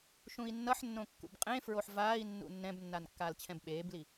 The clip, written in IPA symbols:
ʃ ũ i̯ nː ʌ ħ nː õ kː ṵ b qʼ ẽ f ɹ o ħ v aː i̯ nː ṵ nː ɛ̃ b nː a n kː aː l t͡ɕʰ ɛ̃ b ɓ eː b l i

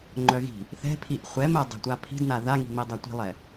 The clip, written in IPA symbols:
ŋ͡ǃ œ ɣ i̤ | θ ɛ̤ pʰ i ʔ χʷ ɛ m ɛ dˤ ɛ̤ tʷ a pʰ i̤ d n a ð a ŋ i̤ m i dˤ a tʷ i̤ lˠ ɛ

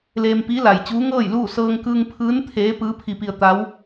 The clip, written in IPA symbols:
l eː˧ m p iː˧˥ l a˩ j t͡ɕ uː˧˥ ŋ ɤː˥˨ j l uː˥˨ s ɤː˧ ŋ k ɯː˧ ŋ pʰ ɯː˧˥ n t̪ʰ eː˧˥ p ɯː˧˥ pʰ i˧ p i˧ ə̯ t̪ a˧˥ w

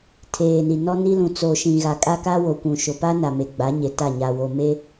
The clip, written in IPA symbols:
tʰ eː˨ n i˨ n ɔ˦ n i˦ l ũ˨ t͡s o˨ ʃ ĩ˨ ɣ a˨ kʼ a˦ k a˦ w o˨ kʷ ũ˨ ʃ o˨ p a˦ n a˨ m e˨ ɡ͡b a˨˦ ɲ e˨ t a˦˨ ɲ a˨ w o˨ m e˦

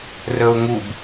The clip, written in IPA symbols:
r ə ʊ̯ ŋ u b

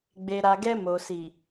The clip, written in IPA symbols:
ɡ͡b e˨ ɾ a˨ ɡ ɛ˧ m o˨ s i˨

